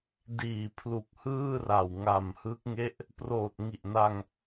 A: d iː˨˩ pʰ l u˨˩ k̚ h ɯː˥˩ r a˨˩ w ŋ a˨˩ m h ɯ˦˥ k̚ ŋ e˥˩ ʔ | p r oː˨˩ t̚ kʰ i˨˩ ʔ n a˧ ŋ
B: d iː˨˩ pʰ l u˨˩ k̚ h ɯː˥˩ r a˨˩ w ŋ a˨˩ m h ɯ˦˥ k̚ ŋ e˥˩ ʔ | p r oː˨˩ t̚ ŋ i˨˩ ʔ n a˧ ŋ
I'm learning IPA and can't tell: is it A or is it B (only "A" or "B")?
B